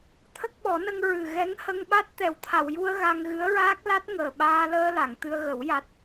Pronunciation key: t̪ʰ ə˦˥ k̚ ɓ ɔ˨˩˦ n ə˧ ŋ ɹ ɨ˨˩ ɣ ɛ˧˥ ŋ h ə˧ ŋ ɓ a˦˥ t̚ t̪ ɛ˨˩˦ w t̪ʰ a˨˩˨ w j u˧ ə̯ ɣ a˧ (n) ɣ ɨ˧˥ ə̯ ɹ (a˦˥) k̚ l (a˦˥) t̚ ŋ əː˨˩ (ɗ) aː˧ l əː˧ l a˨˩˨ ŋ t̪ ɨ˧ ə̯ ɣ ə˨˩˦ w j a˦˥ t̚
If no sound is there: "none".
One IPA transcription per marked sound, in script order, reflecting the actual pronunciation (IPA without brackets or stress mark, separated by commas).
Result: ŋ, aː˦˥, a˦˥, ɓ